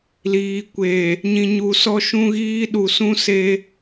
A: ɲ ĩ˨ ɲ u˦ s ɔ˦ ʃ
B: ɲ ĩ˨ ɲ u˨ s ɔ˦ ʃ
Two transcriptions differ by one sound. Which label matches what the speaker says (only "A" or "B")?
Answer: B